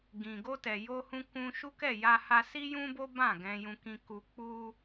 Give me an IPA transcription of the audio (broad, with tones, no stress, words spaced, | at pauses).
ɡĩ˨ ɡo˧tɛ˨jo˧hũ˧ kũ˧ʃu˦kɛ˦˨ ja˧ha˧ si˦jũ˦bo˦ bã˦˨ɡɛ̃˧jũ˧kĩ˧ ku˧ k͡pu˦